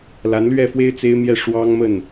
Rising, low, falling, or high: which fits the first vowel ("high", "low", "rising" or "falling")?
rising